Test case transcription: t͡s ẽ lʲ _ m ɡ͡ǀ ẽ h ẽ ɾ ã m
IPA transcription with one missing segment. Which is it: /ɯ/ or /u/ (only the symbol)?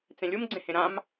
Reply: u